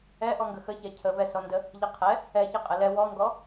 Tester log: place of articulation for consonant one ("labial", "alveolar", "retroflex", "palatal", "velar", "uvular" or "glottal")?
glottal